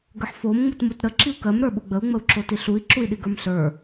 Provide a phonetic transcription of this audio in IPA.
ɡəħfom ŋ͡mutmutɾə ǁiu̯kɜm ɾə˞ɓuɡ͡bəu̯ ŋ͡məu̯ǁotiɬui̯ ǁui̯ɗiɡə˞mɬə˞

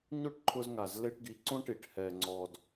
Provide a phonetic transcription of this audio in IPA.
ɲo˦ʈǃʰʊ˧zŋa˨z le˧ʈɡi˨˦ǀõ˦ʈi˨ʈ hɛ˨ŋ͡ǀɔ˨d

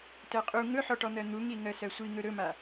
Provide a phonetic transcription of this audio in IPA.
tɜqʼu ŋɵħɔʈɔn̪ɜ n̪uŋi ŋɜsɜsʷiŋɵ ɾɵma

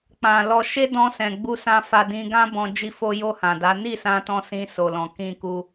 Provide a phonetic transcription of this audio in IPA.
k͡pã˨lɔ˧ ʃe˦dɔ̃˧sɛ̃˨ ɡ͡bu˧sã˧fa˧ dĩ˧ ɡã˦ bɔ̃˧ d͡ʒi˧fo˧jo˧ hã˨da˨˦ ni˦˨sã˧tɔ̃˧ sĩ˧so˨lɔ̃˨ kĩ˧ku˧

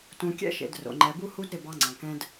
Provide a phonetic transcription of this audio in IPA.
tũ˨kʲɛ̰˦ʃḛ˨d ro̰˨ŋ͡ǃɛ˨bu˦ hu˦dɾɪ˦˨ bɑ˦ŋ͡ǀɑ̃˨ kɛ̃˦d

